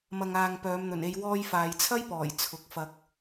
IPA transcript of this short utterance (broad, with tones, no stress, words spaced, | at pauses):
mɐ˨ŋaː˨ŋ pœː˨˧mn̪ɵ˨˩ne˧j wɔː˧jfaː˨jt͡sʰɐ˥jpɔː˨˩j t͡sʰʊ˨˥k̚fɐ˧k̚